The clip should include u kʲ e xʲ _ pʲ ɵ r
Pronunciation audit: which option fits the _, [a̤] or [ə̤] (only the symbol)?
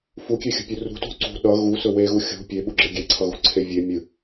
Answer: ə̤